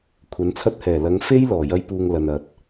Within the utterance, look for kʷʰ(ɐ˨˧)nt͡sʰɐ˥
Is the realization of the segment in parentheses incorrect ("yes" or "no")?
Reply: no